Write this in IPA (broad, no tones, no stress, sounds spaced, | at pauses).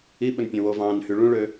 i ɓ ɵ n pʲ œ̃ w o v ɑ̃ n h y ɭ ũ ɭ ø